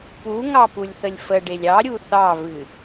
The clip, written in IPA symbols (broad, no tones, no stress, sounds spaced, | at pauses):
p u ŋ ɑ p u lʲ θ ə lʲ f ə ɖ e lʲ ɑ ɾʲ u θ ɑ v ɨ